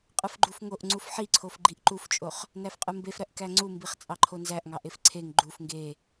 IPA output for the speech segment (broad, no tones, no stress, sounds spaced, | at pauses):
qʼ ɯ f ɡ͡ǃ u f ŋ o ʔ ŋ͡ǀ u f ħ i ǀʰ o f ɡ͡ǃ i ʔ ǃ u f t͡ʃʼ o χ | n æ f qʼ ɯ m b e f ɾ æ ʔ k æ ŋ͡ǀ u m b i χ t͡sʼ ɑ ǃʰ o n z æ ʔ ŋ ɑ ʔ e f ǀʰ e ŋ ɡ͡ǃ u f ŋ ɡ e